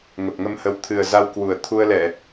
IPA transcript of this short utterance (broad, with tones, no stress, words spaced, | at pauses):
ŋə˨˩p̚ŋə˧mhə˨˦w t̪ʰɨ˨˩ə̯za˧wkwu˧˩ə̯ t̪ʰu˧ə̯lɛ˧˩˨